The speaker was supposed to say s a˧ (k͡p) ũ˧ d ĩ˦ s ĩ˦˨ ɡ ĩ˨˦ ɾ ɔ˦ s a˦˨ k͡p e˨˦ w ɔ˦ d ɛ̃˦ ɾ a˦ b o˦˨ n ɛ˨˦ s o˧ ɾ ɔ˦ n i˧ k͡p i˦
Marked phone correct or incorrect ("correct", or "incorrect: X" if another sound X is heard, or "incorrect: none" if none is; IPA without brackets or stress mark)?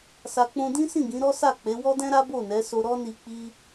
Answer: correct